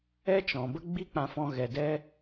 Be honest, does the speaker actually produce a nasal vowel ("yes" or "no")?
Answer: yes